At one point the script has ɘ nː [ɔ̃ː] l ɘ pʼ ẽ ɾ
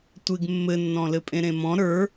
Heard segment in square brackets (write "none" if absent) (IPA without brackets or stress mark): ɔ̃